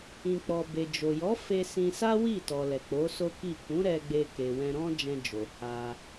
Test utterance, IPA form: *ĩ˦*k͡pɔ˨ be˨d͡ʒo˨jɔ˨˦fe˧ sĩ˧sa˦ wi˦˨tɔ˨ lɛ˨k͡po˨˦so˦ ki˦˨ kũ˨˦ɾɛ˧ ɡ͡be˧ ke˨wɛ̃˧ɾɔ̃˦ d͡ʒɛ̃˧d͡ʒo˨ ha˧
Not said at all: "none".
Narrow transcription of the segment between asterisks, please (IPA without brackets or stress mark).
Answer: ĩ˨